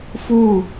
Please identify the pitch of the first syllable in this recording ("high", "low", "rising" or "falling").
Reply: falling